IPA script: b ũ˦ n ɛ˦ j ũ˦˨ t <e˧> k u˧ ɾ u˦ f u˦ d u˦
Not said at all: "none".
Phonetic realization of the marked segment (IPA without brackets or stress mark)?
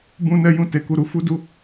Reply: e˧